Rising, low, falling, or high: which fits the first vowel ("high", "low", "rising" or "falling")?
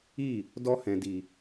falling